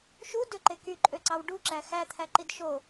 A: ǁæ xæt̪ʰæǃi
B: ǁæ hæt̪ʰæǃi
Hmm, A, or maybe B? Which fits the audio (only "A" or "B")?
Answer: A